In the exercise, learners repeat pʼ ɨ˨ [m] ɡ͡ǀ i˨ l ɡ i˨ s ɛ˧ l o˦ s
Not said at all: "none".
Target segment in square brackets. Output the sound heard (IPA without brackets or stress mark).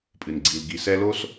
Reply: n